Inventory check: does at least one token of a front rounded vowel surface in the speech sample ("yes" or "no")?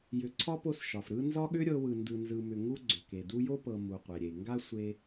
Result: yes